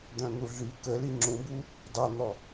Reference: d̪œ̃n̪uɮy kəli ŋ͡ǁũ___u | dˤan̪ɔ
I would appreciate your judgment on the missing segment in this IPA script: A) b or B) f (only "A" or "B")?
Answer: A